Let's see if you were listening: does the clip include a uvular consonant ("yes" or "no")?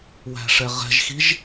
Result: yes